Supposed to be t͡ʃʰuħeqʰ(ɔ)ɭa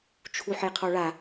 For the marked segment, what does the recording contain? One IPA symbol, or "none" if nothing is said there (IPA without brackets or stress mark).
ɔ